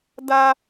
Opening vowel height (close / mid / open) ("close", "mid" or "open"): open